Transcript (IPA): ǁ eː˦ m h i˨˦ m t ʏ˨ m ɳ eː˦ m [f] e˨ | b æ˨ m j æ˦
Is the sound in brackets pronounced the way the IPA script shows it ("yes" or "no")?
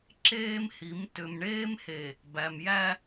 no